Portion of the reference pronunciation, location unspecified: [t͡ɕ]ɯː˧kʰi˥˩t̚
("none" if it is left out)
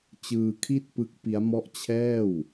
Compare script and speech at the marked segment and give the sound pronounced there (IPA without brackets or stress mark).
t͡ɕ